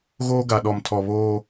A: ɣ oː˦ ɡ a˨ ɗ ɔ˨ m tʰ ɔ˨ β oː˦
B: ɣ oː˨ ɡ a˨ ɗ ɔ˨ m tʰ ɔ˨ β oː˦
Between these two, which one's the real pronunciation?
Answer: A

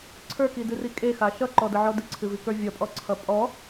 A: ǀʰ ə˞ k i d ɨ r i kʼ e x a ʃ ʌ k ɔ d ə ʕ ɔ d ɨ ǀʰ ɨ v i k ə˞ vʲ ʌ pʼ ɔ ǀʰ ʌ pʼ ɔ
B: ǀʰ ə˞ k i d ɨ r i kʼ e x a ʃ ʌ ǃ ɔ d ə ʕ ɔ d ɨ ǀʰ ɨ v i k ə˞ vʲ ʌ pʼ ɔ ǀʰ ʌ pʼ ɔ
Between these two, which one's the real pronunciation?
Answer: B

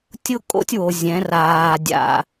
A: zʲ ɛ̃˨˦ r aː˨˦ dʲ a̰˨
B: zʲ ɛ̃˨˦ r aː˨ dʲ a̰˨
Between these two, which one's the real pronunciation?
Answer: B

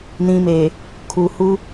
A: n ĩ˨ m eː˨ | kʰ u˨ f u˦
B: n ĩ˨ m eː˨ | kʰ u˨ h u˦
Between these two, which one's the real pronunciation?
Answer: B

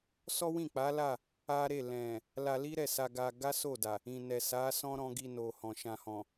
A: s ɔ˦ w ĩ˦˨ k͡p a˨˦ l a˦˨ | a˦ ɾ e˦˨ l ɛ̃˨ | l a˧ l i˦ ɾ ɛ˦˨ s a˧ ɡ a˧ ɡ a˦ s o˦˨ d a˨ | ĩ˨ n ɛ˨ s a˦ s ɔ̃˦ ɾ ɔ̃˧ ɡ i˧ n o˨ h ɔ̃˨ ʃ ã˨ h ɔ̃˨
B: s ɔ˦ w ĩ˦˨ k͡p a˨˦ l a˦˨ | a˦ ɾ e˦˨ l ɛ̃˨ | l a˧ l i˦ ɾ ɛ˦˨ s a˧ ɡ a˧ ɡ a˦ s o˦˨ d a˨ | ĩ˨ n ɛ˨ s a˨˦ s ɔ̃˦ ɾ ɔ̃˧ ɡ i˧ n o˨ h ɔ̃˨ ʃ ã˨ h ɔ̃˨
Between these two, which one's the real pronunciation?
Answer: B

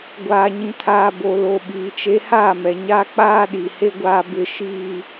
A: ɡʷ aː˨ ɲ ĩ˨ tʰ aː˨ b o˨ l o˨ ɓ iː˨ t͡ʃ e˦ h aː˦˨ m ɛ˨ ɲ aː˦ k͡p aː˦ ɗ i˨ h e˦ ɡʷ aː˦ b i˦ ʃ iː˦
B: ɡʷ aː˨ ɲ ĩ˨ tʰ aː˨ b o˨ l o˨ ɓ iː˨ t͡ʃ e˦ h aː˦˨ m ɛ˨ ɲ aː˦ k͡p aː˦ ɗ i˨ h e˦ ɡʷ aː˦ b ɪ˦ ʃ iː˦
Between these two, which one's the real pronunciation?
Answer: B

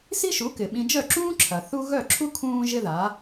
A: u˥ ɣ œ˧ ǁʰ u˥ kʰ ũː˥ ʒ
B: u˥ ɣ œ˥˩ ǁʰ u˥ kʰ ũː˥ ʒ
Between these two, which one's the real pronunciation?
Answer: B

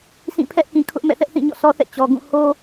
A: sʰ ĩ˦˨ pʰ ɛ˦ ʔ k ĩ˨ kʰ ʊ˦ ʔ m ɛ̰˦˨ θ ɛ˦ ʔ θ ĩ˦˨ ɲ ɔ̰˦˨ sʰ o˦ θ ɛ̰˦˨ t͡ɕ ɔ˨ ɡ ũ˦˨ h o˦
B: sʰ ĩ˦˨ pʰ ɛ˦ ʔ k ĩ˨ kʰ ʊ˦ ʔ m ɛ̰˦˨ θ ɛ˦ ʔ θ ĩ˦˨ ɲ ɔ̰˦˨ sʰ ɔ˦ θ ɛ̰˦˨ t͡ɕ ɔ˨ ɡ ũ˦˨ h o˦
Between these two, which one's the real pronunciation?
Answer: B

